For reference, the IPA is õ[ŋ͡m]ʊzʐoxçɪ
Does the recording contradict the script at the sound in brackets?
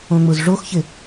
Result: no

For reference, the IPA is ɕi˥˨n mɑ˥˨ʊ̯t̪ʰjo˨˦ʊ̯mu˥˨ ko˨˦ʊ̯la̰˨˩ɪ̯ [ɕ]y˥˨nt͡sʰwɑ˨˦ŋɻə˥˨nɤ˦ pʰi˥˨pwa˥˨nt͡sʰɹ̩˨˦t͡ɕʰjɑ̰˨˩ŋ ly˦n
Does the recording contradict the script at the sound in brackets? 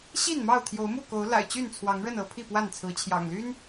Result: yes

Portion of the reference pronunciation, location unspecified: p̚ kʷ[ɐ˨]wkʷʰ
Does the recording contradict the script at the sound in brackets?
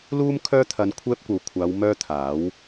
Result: no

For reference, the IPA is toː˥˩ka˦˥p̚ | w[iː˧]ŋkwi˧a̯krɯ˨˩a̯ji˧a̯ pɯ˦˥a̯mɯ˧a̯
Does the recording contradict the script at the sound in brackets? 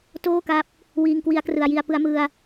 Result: no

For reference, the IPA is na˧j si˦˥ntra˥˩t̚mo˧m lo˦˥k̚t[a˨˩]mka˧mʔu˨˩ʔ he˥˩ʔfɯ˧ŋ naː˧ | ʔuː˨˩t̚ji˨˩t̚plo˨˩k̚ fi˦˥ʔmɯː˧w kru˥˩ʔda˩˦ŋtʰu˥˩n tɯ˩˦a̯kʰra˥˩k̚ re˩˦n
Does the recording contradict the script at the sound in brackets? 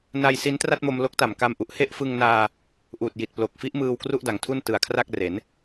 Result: no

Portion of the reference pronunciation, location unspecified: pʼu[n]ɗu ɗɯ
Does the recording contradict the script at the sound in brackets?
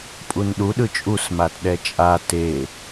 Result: no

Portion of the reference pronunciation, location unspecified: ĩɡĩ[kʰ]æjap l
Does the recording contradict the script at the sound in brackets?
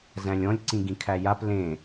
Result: no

